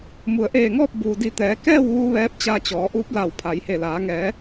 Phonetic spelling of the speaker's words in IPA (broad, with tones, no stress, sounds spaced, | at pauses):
m u˩ ə̯ ʔ eː˧˩ ŋ ɔː˥˨ p̚ b uː˩ d i˧˩ t̪ ɛː˩˧ k ɛː˥˨ w ʋ u˧ ʋ ɛː˧˥ p̚ t͡ɕ a˧ t͡ɕ ɔː˩˧ ʔ uː˧˥ p̚ l a˧˩ w pʰ a˩˧ j h e˧˩ l aː˩˧ ŋ ɛː˩˧